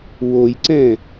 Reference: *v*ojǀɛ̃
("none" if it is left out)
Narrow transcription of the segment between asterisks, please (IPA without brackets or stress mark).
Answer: w